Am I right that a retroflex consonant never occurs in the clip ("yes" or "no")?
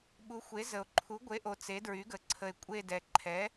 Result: yes